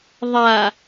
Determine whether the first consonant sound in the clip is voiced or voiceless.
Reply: voiced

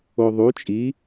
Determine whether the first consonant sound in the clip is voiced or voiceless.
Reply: voiced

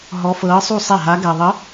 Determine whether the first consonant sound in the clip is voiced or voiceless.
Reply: voiced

